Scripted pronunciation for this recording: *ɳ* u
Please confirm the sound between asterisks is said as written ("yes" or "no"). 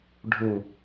no